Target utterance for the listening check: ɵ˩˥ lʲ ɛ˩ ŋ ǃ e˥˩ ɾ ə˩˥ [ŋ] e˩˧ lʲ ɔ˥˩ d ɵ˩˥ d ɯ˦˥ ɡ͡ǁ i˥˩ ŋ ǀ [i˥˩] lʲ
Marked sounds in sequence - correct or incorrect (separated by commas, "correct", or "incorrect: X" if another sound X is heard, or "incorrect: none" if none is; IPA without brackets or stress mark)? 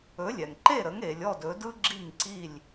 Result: correct, correct